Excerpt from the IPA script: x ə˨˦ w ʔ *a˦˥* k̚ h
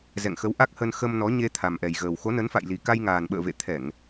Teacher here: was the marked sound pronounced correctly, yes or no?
yes